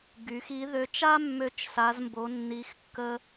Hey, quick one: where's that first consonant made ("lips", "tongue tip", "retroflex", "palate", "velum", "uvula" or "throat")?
velum